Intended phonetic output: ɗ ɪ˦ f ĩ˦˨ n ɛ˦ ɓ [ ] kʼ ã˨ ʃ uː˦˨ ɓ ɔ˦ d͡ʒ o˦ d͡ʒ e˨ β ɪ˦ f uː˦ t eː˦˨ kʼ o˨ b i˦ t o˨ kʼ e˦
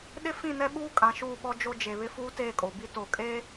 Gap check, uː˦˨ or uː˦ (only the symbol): uː˦